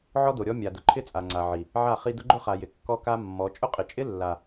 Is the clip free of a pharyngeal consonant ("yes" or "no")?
no